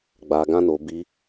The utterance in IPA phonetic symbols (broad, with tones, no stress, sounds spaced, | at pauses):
ɡ͡b a˧ ɡ ã˦ n o˧ b i˧